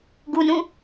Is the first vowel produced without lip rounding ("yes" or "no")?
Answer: no